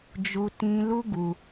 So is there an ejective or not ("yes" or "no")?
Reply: no